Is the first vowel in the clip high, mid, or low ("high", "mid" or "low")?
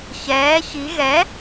mid